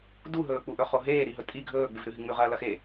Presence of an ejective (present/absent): present